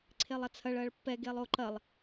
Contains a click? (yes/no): yes